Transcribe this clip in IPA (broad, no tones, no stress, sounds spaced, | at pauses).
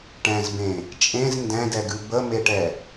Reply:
ʈ ɛ̃ z b ẽ | t͡ʃʼ ẽ z n d ɛ̃ d ɛ ɡ ʉ b ə m e ʈ ɛ